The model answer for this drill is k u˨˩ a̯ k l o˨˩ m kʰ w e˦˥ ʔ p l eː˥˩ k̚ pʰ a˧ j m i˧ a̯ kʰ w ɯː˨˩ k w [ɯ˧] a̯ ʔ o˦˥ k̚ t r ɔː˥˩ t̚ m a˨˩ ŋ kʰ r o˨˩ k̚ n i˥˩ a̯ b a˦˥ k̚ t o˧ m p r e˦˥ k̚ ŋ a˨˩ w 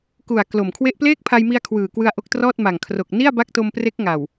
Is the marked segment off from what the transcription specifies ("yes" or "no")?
no